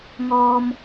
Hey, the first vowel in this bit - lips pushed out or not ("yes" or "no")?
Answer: yes